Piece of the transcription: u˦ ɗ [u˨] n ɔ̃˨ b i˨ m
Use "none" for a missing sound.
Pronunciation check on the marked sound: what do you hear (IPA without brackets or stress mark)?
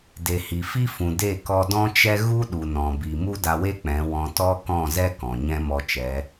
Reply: u˨